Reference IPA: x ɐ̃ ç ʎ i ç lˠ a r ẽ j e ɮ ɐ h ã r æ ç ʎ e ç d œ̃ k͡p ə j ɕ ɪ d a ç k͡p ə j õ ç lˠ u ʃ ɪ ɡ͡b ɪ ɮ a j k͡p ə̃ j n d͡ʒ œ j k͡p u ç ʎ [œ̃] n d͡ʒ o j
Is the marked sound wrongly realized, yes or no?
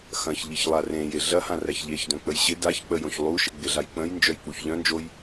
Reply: no